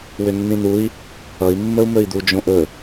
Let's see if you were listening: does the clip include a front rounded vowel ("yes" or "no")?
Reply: yes